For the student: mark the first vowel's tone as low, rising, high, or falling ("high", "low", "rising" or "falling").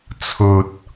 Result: low